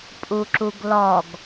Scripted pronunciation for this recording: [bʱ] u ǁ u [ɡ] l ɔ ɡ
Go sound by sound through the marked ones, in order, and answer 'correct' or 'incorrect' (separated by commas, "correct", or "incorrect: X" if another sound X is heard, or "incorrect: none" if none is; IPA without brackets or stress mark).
incorrect: pʼ, correct